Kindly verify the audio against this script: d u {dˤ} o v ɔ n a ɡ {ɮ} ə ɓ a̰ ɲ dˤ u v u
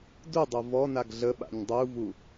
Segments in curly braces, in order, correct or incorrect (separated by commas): correct, correct